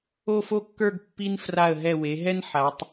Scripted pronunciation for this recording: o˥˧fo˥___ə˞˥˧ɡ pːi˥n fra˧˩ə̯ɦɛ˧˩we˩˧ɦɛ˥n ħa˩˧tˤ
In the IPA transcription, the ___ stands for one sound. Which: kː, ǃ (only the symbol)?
kː